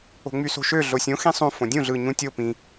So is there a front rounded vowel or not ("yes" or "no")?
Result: yes